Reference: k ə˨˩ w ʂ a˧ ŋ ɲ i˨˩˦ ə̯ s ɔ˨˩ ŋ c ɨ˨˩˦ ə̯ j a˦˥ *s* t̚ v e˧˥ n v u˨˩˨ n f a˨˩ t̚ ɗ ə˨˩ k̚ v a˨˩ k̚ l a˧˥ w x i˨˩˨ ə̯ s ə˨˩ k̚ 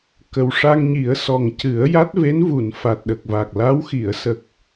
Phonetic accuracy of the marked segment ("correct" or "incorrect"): incorrect